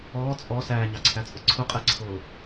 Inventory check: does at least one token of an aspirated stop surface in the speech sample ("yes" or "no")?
yes